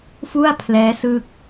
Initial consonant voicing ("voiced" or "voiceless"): voiceless